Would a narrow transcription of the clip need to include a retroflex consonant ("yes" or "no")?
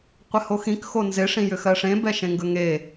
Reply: yes